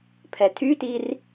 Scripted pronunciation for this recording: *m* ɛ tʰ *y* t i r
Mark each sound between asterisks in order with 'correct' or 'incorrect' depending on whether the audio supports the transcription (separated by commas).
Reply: incorrect, correct